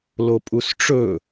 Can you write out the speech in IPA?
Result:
lopʼusʈ͡ʂɵ

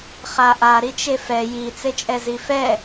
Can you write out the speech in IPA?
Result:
χaʔa ɾit͡ʃefɛ ji t͡set͡ʃʼɛzifɛ

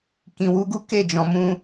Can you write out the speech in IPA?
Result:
kĩ˨ wu˨˦ɡu˦ ke˦˨d͡ʒɔ̃˨mũ˧

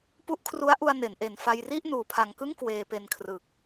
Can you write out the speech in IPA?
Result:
pu˦˥ʔkʰru˦˥a̯ʔu˧a̯ ne˩˦nʔe˨˩n fa˧jri˥˩ʔ nuː˨˩pʰa˨˩ŋkɯ˥˩ŋ kweː˧pe˧nkʰrɯ˨˩k̚

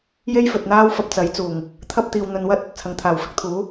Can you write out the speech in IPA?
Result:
je˥jfɵ˨t̚n̪aː˥wfɐ˧p̚ t͡sɐ˨˥jt͡suː˨˩ŋ | t̪ʰɐ˥p̚t̪iː˨wn̪ɵ˧nwɐ˥t̚ | t͡sʰɐ˨ŋt̪ʰaː˨˩w fɪ˧k̚t̪ʰuː˨˥

